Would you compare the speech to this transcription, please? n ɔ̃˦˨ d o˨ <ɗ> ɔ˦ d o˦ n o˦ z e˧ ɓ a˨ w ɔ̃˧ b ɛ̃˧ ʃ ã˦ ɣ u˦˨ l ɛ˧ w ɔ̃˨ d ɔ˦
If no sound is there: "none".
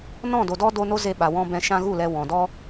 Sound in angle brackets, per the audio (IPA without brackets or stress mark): d